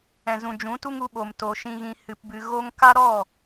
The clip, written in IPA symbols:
ɛ̃˨ z ũ˨ d͡ʒ ũ˨˦ t u˦ ŋ u˧ ɓ o˨ m t o˨ ʃ ĩ˨ ɣ ĩ˨ h ɨ˨ p b ɨ˨ ɣ o˧ ŋ k a˦ ɾ ɔ˦˨

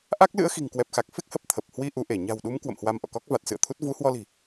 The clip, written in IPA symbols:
ʔ a˦˥ k̚ l ɨ̰˧˥ ə̯ x i̤˨˩ ŋ k w ɛ˨˩ p̚ x a˨˩ k̚ f e˦˥ k̚ h ə˨˩ p̚ t̪ʰ ə˨˩ p̚ h w i˧ ʔ u˨˦ ʔ e˧˩ ɲ a̤˨˩ w ɗ u˨˦ m k w ə̰˧˨ m h w a˧ m ʔ ɔ̰˧˨ k ɔ˦˥ k̚ v a˨˩ t̚ s ɨ̰˧˨ ə̯ t̪ʰ u˦˥ t̚ v u˨˦ h w ɔ˧ l i̤˨˩

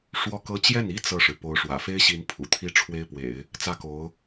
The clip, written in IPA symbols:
ʂ w ɔ˥˩ k ɤ˥ t͡ɕ j ɛ˥˩ n i˥ t͡s ɤ˥˩ ʂ ɻ̩˩ p o˧˥ ʊ̯ ʂ w ä̰˨˩ f e˥ ɪ̯ ɕ i˧˥ n pʰ ṵ˨˩ t̪ʰ i˥ ʈ͡ʂʰ w e˥ ɪ̯ p w ḛ˨˩˦ ɪ̯ | t͡s ä˥˩ k o˧˥ ʊ̯

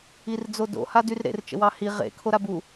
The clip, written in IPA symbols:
i r d͡z o d o̰ h a d y r ɾ ḛ r t͡ʃ ə̰ w ɑ h i ʁ ḛ kʰ o ɾ a b u

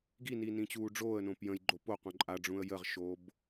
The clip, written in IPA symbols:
ɡ i n i n ĩ t͡ɕ uː ɖ͡ʐ oː ə̯ n õː p j ə̃ j ɡ͡ǃ o p o q õ ǃʼ a ɖ͡ʐ ũ ə̯ j ə ʁ ʃ oː b

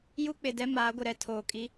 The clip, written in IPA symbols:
j u˦ k͡p ɪ˨ d ɛ˦ m aː˨˦ ɡʷ ɪ˨ ɾ ɛ˦ tʰ oː˨ kʼ i˦

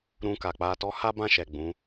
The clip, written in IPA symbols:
ɾ ũ˧ k a˨ k͡p a˧ t ɔ˧ h a˦ b ã˦˨ ʃ ɛ˨ ɡ͡b ũ˨˦

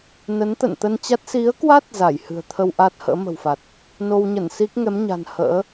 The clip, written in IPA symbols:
n ə˨˦ n t̪ ə̰˧˨ n t̪ ə˧ n t͡ɕ a˦˥ t̚ s i˨˦ ə̯ k w a˦˥ t̚ z a˧˩ j h ɨ̤˨˩ ə̯ t̪ʰ ə˧ w ʔ aː˦˥ t̚ h ə̰ː˧˥ m ə̤˨˩ w f a˨˩ t̚ | n o˧ w ɲ ə˧˩ n s i˦˥ k̚ ŋ ɛ˨˦ m ɲ a̤˨˩ n h ə̰ː˧˥

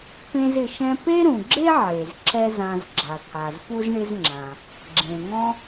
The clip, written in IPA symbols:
p ẽ˥ z ɪ˧ ʃ ɛ̃˥ p e˥ ɾ ũ˩ ɡ͡ǁ e˥ ʕ e˩ z ǁ ɛ˥ z ã˧ z ɡ͡ǁ a˩ t̪ʰ a˩ z p u˥ z ɳ ɪ˥ z ŋ͡ǁ ã˩ | ɡ͡ǁ ẽ˩ ŋ ɔ̃˥

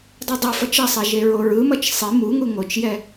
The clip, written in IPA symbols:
dˤ u dˤ ɯ f ʌ t͡ʃ ʌ sˤ e ʒ e ɹ o ɹ ɯ m ʌ t͡ʃ sˤ i m u ŋ u ŋ o t͡ʃ j ɛ

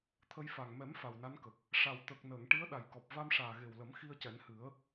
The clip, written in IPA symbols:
t̪ʰ ə˧ j f a˨˩ ŋ m ɛ˨˩˦ m f a˨˩ w n a˧˥ n k ə˨˩ k̚ | ʂ a˨˩ w t̪ ə˨˩ k̚ n əː˨˩˨ ŋ ʈ i˧˥ ə̯ ɗ a˨˩ j k ɔ˨˩ p̚ v a˧ m ʂ aː˨˩ ɣ e˨˩ w l ə˨˩˦ m x i˧ ə̯ c ɛ˨˩˦ n h ɨ˨˩˦ ə̯

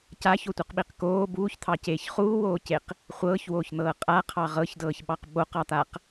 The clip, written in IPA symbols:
c a ç o tʷ i q ɓ i q k oː b uː ç t̪ʰ ɑ c eː ç χ uː w oː c e q | χʷ ɤː ç w oː ç n̪ ɤː qʼ a qʰ ɑ ʁ ɤ ç d ɤː ç ɓ ɑ q ɓ o q ɑ t̪ a q

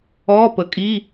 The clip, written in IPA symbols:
ɔː˧˥˧ p əː˩˥ kʼ i˧˥˧

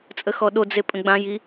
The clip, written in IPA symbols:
t͡sʼ ə x ɔ ɗ o d͡z e pʼ ə̃ ɡ͡b ã j i

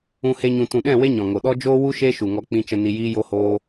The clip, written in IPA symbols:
ũ˧ h e˧ ɲ ũ˨ t ũ˨ ɗ ɛ̃˦˨ w e˦ ɲ ɔ̃˨ ŋ o˨ ɗ ɔ˦ d͡ʒ oː˦ w u˦ ʃ e˦ ʃ u˨ ŋ ɔ˧ k͡p ĩ˧ t͡ʃ ə˧ n i˧ j iː˦ j o˦ h oː˦

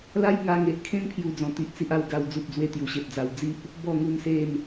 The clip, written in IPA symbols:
l a˦ j ŋ a˧ ŋ e˨ ʔ kʰ ẽ˦ n pʰ j u˦ d͡z ɔ̃˧ t̪ i˦ ʔ t͡s i˦ ʔ a˥˧ w ɡ a˦ w d͡z u˨ p̚ d͡z w e˧ t̪ j u˨˩ ɕ e˨ p̚ d͡z a˧ w d͡z i˦ ʔ | b ɔ˥˧ ŋ u˥˧ n s e˥˧ n

